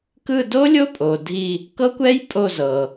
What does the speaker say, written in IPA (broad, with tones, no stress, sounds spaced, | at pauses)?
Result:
k ɯ˦˨ d o˦˥ lʲ o˦˥ pʼ o˩ dʱ i˦˨ | k ɤ˦˥ kʷ ɛ˦˥ j pʼ o˦˨ z ɤ˩